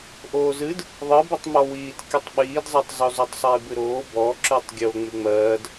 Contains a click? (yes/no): yes